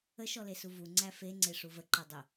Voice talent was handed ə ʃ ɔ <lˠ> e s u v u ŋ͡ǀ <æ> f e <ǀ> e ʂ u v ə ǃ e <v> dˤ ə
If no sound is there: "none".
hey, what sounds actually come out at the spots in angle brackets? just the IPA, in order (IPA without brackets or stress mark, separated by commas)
l, æ, ŋ͡ǀ, none